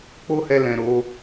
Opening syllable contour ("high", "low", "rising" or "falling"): high